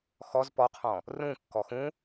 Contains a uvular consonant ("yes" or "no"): yes